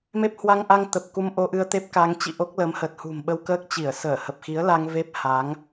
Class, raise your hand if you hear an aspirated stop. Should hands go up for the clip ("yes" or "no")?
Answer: no